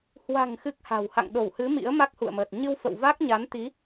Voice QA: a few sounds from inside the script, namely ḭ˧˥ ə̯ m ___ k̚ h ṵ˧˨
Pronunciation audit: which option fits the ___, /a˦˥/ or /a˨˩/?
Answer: a˦˥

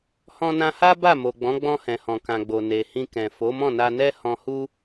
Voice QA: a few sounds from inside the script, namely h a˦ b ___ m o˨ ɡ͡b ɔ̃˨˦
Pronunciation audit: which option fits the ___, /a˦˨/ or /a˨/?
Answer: a˦˨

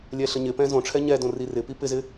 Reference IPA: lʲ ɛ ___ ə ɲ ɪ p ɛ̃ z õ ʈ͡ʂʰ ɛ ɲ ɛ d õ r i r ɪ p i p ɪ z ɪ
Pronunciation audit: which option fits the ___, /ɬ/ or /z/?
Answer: ɬ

